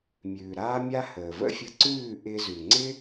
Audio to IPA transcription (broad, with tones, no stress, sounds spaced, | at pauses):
mʲ ʉː˩ ɾ aː˥ mʲ a˥ h əː˩ v ə̰˥ fʲ ə˧ ǀ ʉː˥˩ ʔ ɪː˧ z ʉ˩ ŋ͡ǀ ɪ˥